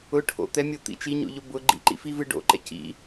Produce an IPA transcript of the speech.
ʊ ʈʰ o̰ t̪ ɛ mʲ o t̪ ḭ t͡ʃ i ɲ o̰ ʎ o b ʊ ɡ͡ǃ ḭ ǃ ḭ f i v ɨ ɖ o̰ ǃ ɛ̰ c ḭ

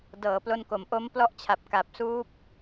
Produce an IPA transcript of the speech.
d ɤː˩˦ p l o˧ n k o˩˦ m ʔ o˦˥ m p l ɔ˦˥ ʔ t͡ɕʰ a˨˩ p̚ k a˨˩ p̚ s uː˦˥ p̚

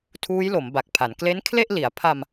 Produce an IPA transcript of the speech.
tʰ uː˦˥ j l o˩˦ m b a˨˩ k̚ pʰ a˩˦ n k l e˦˥ n kʰ l e˥˩ ʔ l i˩˦ a̯ pʰ a˧ m

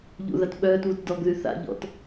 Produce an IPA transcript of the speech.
ʎ ṵ ð a t ɓ œː t β u t d ɔ ɡ ð y θ a̰ ʎ ɔ̰ t

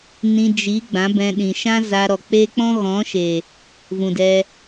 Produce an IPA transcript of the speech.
n ĩ˧ d͡ʒ i˨˦ ɡ͡b ã˨˦ b ɛ̃˧ ɗ ĩ˨ ʃ ã˦ z a˧ ɾ ɔ˨ k͡p e˦ k͡p ɔ̃˦ ɣ ɔ̃˨˦ ʃ e˨ | v ũ˨ d ɛ˧

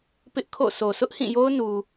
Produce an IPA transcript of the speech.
p ɪ˦ ʔ kʰ o̰˦˨ sʰ o˨ sʰ ʊ˦ ʔ h ĩ˦˨ j o˦ ʊ̯ n u˨

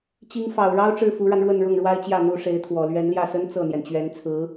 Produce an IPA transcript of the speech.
t͡ɕ i˧˥ ŋ f ɑ˨˩ ʊ̯ ɻ ɑ˥ ʊ̯ ʈ͡ʂ ɻ̩˥˩ f u˧˥ ɻ a˧ n ɻ w ə˥˧ n ɻ ʊ˥˩ ŋ ɻ w a˥ ɪ̯ t͡ɕ j ä˥˩ n̪ u˧˥ ʂ e˧˥ ɪ̯ t̪ʰ w ɔ˨˩ l ɥ ɛ˧˥ n l j ä˥˩ s ə˥ n t͡s ɤ˥˩ n̪ j ɛ˩ n t͡ɕ ɥ ɛ˧˥ n t͡sʰ ɹ̩˧˥

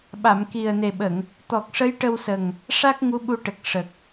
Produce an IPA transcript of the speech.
ɓ a˨˩˨ m k i˨˩ ə̯ n e˨˩ ɓ ə˨˩˨ ŋ | t̪ ɔ˨˩ k̚ ʂ ə˧˥ j ʈ ə˧ w s ə˨˩ ŋ | ʂ a˦˥ k̚ ŋ u˧˥ ɓ u˧ ʈ ə˨˩ k̚ ʂ ə˨˩ k̚

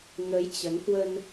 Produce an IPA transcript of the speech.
ŋ ə˨˦ j t͡ɕ ə˨˦ n h w ə˧ n

